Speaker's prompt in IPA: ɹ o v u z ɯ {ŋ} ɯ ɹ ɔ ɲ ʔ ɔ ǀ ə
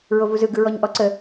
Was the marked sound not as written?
yes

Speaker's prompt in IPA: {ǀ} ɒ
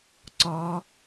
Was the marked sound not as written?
no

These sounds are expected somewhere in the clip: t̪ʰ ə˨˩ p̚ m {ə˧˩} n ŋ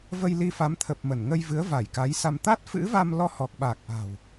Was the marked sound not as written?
no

